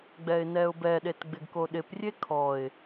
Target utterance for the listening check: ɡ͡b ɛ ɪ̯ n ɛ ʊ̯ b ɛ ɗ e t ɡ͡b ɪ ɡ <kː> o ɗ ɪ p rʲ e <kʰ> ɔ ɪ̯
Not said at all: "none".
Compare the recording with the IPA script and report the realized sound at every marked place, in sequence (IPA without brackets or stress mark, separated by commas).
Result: k, kʰ